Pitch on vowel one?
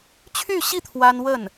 falling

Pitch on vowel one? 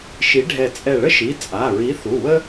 rising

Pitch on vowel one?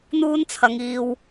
high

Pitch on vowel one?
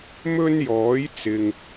high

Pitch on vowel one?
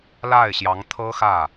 falling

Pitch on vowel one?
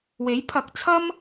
rising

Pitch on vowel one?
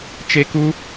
high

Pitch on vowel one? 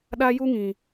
high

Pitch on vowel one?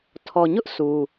low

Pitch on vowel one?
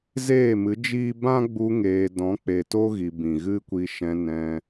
falling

